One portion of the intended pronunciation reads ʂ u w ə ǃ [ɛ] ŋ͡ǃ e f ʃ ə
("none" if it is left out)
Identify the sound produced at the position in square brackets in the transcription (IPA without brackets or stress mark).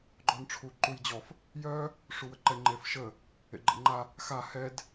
ɛ